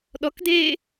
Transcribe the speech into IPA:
ɗ ɔ k d eː

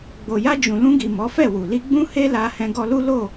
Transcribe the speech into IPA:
ɡ͡b o˨ j a˧ d͡ʒ ũ˨ l ũ˧ ɡ i˨ m ɔ˨˦ f ɛ˦˨ w u˨ l i˧ ɡ͡b ũ˦ h e˦ l a˧ h ɛ̃˧ ɡ ɔ˧ l u˦ l o˦˨

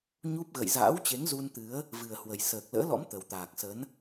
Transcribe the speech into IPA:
ɲ u˦˥ p̚ ɣ ə̰˧˨ j z a̰ː˧˥ w t͡ɕ e˨˦ ŋ z u˧ n t̪ ɨ˨˦ ə̯ | v ɨ˨˩ ə̯ h w ə˨˩ j s əː˨˩ k̚ l ə̰ː˧˥ l ɔ̰˧˥ m t̪ ə˨˩ w t̪ aː˨˩ k̚ s ə˨˦ n

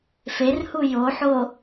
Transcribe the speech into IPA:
f e r h u j o ħ o

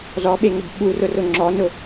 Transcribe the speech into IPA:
z ɔ ɓ e ŋ ʊ b ɓ u r ʊ r ʊ ŋ͡ǁ ɔ n ʊ

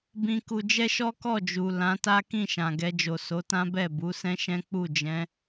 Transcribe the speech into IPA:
b ĩ˧ k u˧ d͡ʒ ɛ˦ ʃ ɔ˦ k ɔ˦˨ d͡ʒ u˨ l ã˨˦ t a˦ k ĩ˦˨ ʃ ã˨ ɡ ɛ˧ d͡ʒ o˨ s o˨˦ t ã˦ b ɛ˦˨ b u˨˦ s ɛ̃˦ ʃ ɛ̃˦ k͡p u˦˨ d͡ʒ ɛ̃˨˦

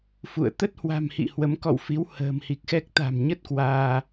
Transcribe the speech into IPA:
f ṵ˧˨ ə̯ t̪ ə˦˥ t̚ h w a̤˨˩ m h ḭ˧˨ h w ə˨˦ m k ɔ̰˧˨ w f i˨˦ w h ə̤ː˨˩ m h i˨˩ k̚ x ɛ˦˥ k̚ t̪ a̤˨˩ m ɲ ə˦˥ t̚ k w aː˧

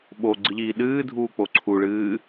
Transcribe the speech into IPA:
ɓ o ɡ͡ǀ ɨ ʎ iː ɗ ɨː dʱ uː k͡p o ǀʰ u ɭ ɨː

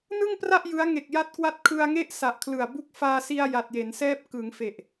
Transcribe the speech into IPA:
n ɯ˥˩ ŋ p r a˥˩ ʔ j ɯ˦˥ a̯ ŋ e˨˩ k̚ j a˥˩ t̚ k w a˥˩ t̚ kʰ ɯ˧ a̯ ŋ e˥˩ ʔ s a˨˩ ʔ kʰ l ɯ˨˩ a̯ b u˦˥ k̚ f aː˧ s i˧ a̯ j a˨˩ t̚ j e˩˦ n s ɛː˥˩ p̚ k ɯ˩˦ ŋ f e˨˩ ʔ

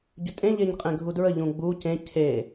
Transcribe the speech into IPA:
ɟ ʏ tʼ ẽ ʎ e ɲ qʼ ẽ ɡʱ u d ɹ ə ʎ ũ ɡ͡b u c ẽ cʰ e

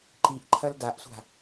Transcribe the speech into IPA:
ǃ i ʔ ǃʰ ɐ l d a ʔ sʷ a̤

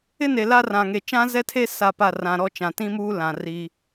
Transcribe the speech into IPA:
ɪ˦ n e˨ l a˦ r ã˨ ŋ e˨ t͡ʃ ã˦ z ɛ˦ tʰ e˦ s a˦˨ p a˦˨ r ã˨ ɾ ɔ˦ t͡ʃ ã˨ t ĩ˦ m uː˦ l ã˨ r i˦

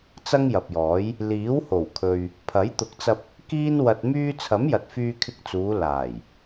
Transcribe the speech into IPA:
t͡s ɐ˥ ŋ j ɐ˨ p̚ j ɔː˨˥ j | l iː˨˥ w h o˨˩ w kʰ ɵ˨ ɥ | pʰ ɐ˨˥ j t̪ ʊ˨˥ k̚ t͡s ɐ˧ p̚ | k iː˥ n w ɐ˧ t̚ m yː˥ t͡sʰ ɐ˨˥ m j ɐ˨ t̚ f yː˧ kʰ ɪ˧ k̚ t͡s uː˨˧ l aː˨˩ j

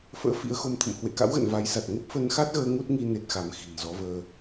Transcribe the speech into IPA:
f ə̰ː˧˥ f ḭ˧˥ ə̯ x o˧ m t̪ʰ ə̰˧˨ m h w ḛ˧˨ k a̰˧˥ w ɣ ə̰˧˨ n v a˨˦ j s a˨˩ t̚ ŋ ə˦˥ p̚ f ə˧ n x a˦˥ t̚ ɣ əː˧ ŋ u˦˥ t̚ ŋ i˧ n e˦˥ t̚ x a˨˦ m x i̤˨˩ n z ɔ˨˦ v əː˧

